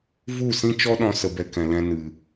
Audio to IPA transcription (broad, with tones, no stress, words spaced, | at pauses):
vu˦˨sĩ˦t͡ʃɔ˦ɗɔ̃˧ sə˧bɛ˧kɛ̃˨lɛ̃˧ nɨ˨